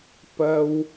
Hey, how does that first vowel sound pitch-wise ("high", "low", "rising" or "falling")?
high